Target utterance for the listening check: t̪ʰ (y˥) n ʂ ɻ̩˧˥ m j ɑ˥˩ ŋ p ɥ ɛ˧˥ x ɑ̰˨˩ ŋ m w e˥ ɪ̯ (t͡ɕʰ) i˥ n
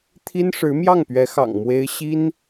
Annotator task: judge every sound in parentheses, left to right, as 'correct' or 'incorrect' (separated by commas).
incorrect, incorrect